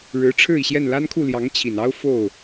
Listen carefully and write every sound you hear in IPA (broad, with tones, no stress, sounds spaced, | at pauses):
ɻ ɻ̩˧˥ ʈ͡ʂʰ ɻ̩˥˩ i˩ ɕ j ɛ˥˩ n l a˥ n kʰ u˥˩ l j ɑ˧˥ ŋ t͡ɕʰ i˨˩ n ɑ˥ ʊ̯ f o˥˩ ʊ̯